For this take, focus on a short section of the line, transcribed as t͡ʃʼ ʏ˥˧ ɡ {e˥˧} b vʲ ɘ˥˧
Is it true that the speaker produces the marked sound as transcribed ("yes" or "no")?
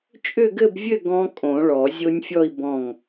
no